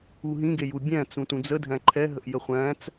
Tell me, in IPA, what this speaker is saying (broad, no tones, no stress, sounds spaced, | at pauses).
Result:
u ɦ ĩ ɡ e j u bʲ æ̃ t͡s ũ t ũ d͡z ə dʱ æ̃ ǃʰ ɛ ɦ ə ʔ j ə χʷ æ̃ t͡s